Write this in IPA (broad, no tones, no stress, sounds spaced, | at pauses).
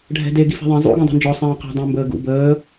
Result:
ɖʱ ɛ̤ d e ɡ i f ɛ̤ ðˤ ẽ zˤ ṵ ɡ ɛ̃ dˤ e̤ n d͡ʒ ɔ sˤ ẽː q ɛ̤ dˤ ẽ m b əː ɡ ṵ b əː